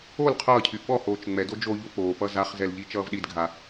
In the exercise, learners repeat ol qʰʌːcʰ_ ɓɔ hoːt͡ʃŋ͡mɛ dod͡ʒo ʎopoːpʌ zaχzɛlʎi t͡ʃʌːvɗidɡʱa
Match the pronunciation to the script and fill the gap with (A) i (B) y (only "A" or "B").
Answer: B